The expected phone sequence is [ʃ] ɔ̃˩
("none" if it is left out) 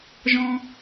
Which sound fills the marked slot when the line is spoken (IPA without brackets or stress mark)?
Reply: ʒ